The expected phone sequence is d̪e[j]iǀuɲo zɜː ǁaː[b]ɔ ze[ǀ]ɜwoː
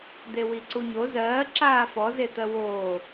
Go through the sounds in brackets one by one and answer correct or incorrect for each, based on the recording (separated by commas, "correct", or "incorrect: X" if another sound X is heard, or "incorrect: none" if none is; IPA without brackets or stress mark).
incorrect: w, incorrect: f, incorrect: t̪